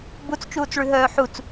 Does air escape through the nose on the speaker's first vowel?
no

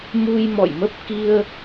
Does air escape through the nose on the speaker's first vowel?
no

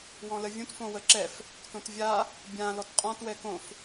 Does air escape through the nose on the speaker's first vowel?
yes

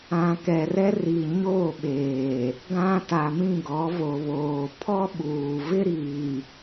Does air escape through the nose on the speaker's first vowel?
yes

